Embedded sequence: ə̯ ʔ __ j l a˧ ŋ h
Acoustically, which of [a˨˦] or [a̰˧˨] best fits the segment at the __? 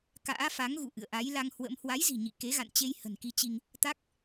a˨˦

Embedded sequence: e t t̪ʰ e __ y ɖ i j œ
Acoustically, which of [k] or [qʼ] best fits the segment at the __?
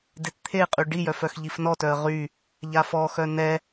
qʼ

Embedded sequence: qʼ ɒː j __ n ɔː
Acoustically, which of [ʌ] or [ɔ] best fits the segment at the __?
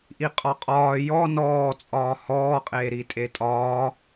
ɔ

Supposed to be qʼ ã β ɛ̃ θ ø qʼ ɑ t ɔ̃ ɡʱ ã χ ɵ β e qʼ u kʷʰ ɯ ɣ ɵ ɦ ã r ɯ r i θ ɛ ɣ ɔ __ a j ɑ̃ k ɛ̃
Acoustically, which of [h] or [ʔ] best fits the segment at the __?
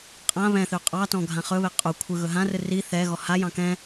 h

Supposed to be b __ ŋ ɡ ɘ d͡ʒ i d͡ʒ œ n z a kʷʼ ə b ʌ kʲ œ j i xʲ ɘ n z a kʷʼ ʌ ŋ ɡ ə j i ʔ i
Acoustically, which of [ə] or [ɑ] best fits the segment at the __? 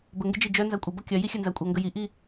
ə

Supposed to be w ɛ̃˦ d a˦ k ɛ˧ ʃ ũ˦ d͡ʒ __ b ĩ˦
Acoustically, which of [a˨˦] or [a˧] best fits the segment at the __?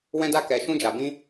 a˧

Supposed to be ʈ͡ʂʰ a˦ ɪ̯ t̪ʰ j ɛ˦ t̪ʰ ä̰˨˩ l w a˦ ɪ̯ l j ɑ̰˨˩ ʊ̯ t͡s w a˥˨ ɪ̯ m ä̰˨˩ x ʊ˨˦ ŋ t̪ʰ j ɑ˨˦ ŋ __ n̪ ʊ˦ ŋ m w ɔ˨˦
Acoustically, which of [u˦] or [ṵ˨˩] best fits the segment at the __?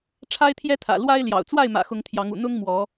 ṵ˨˩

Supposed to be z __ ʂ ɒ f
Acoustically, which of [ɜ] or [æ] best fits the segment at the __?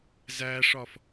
æ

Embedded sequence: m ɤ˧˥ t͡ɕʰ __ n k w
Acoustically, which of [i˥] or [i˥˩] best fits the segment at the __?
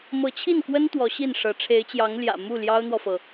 i˥˩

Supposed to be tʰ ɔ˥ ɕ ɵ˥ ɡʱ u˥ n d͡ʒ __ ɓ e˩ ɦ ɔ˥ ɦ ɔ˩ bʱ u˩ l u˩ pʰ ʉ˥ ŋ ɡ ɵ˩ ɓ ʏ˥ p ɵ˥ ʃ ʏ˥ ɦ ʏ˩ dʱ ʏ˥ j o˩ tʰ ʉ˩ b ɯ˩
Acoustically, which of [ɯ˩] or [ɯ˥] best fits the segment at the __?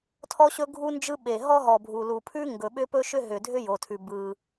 ɯ˥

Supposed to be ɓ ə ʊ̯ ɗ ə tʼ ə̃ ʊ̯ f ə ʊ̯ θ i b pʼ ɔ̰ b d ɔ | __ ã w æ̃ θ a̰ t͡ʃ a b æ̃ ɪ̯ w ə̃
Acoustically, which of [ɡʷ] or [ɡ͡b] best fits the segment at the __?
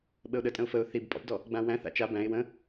ɡ͡b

